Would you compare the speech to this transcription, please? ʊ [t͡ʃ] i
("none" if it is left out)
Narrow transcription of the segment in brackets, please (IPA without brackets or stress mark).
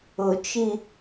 t͡ʃ